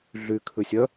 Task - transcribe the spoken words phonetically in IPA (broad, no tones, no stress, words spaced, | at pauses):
ɮykʰʉ sʲœ